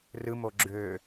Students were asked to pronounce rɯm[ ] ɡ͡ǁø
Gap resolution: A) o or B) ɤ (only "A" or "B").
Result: A